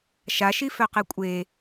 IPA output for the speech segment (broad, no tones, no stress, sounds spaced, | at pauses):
ʃ a ʃ i f œ q e kʷʼ e